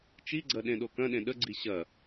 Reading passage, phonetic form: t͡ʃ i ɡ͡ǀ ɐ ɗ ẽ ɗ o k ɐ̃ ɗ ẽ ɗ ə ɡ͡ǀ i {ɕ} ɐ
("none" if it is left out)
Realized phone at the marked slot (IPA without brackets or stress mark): ɕ